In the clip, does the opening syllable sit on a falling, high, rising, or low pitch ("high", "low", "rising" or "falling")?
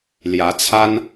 rising